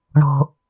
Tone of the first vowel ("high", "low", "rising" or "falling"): low